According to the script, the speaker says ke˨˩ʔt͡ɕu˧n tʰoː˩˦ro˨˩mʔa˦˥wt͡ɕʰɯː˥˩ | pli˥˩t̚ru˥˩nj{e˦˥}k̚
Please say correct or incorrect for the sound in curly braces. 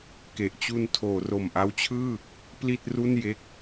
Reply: correct